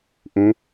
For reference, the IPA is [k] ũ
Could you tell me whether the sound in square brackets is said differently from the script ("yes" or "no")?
yes